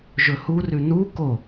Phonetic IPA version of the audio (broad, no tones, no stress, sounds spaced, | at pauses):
ʒ ɵ h u r ʉ n u k o